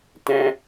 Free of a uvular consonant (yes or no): yes